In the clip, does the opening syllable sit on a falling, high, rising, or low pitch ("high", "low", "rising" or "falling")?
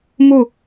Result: falling